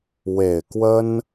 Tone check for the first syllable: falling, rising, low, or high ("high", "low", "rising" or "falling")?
low